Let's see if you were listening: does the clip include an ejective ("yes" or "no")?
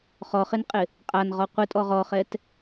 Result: yes